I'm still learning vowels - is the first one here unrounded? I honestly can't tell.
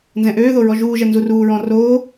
yes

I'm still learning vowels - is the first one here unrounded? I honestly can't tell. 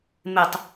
yes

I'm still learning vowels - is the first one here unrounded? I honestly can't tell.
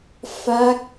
yes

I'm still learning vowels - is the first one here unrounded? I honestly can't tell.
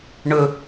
no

